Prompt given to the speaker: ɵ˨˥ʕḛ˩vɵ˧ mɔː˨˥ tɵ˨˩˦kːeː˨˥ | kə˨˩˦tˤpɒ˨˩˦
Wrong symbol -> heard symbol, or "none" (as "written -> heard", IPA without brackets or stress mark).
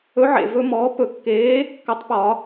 t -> p